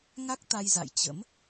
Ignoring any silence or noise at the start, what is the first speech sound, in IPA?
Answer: ŋ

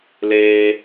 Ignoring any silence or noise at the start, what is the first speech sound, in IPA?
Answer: l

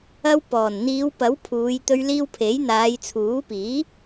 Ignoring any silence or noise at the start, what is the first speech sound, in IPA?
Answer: ɐ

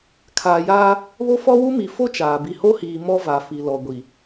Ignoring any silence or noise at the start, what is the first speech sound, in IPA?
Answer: kʰ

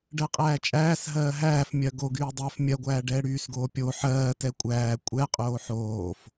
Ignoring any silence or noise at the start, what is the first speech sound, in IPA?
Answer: ɖ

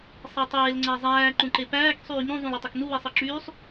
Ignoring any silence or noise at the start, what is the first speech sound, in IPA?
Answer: sˤ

